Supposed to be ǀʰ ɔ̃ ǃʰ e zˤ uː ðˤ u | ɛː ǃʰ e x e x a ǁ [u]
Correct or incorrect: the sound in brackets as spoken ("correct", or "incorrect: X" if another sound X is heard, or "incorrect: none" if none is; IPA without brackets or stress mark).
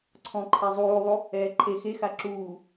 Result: incorrect: uː